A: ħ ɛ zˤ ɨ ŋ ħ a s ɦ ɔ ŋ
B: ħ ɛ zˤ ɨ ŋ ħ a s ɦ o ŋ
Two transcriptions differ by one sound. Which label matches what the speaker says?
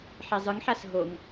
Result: B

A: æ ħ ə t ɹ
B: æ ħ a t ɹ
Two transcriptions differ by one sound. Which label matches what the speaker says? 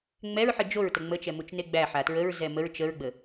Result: B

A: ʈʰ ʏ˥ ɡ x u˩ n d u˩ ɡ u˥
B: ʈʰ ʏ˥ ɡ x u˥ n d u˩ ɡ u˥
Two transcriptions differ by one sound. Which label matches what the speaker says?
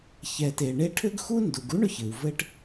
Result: B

